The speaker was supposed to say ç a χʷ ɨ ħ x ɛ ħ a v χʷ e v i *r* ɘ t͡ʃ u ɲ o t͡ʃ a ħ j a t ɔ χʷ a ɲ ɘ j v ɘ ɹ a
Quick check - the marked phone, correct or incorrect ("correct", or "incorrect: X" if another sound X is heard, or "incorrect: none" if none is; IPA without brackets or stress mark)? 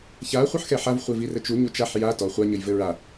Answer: correct